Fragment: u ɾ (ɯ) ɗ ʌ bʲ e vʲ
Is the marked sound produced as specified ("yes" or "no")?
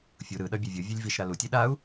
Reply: yes